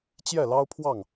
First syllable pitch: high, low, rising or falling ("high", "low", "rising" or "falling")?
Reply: falling